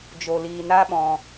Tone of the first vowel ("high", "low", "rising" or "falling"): low